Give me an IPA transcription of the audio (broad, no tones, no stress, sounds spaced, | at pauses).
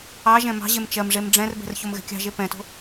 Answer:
ɑ ʒ ɛ̃ m ɑ̤ ʑ e m t͡ʃ ɜ m ʐ e m ɖ͡ʐ ɛ̃ r b ɛ̤ r ç o m ɣ ɛ̤ kʲ ɑ̤ ʒ e p ɛ̃ t o̤